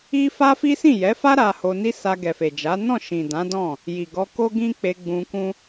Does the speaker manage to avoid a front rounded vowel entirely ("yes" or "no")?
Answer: yes